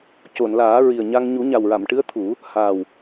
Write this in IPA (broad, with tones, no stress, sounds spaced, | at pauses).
c o˨˩˨ n l aː˨˩˦ ɹ i˨˩ ə̯ ɲ a˧ ŋ ɲ u˨˩˦ ɲ a˨˩ w ɹ a˨˩˨ m ʈ ɨ˧˥ ə̯ t̪ʰ u˨˩˦ | h aː˨˩ w